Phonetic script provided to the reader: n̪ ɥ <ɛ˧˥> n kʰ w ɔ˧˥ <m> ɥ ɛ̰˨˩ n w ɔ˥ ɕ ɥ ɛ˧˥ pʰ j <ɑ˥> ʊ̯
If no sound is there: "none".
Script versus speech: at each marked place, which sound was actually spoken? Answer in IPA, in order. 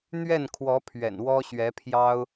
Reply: ɛ˥˩, pʰ, ɑ˥

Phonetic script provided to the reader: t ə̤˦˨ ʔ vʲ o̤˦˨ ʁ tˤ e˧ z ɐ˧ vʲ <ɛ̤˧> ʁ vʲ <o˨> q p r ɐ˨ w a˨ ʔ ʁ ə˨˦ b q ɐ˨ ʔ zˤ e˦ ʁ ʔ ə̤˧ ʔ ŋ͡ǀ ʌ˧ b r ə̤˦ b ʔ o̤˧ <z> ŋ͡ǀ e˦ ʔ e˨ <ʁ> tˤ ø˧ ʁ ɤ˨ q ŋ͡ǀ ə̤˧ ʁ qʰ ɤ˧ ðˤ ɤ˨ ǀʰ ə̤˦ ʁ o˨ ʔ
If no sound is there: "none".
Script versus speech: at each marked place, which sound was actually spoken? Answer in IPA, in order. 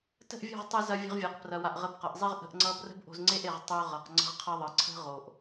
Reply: ə̤˧, ɤ˨, z, ʁ

